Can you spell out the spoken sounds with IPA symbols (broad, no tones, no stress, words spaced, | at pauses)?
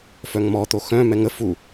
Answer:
fœŋmɔ t̪oxœ̃ mɛŋə fu